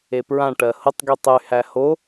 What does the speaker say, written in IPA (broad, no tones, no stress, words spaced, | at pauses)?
epɹãʈɜ hʊtˤɡy tˤyhæ ho